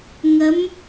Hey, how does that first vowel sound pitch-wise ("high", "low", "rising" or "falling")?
rising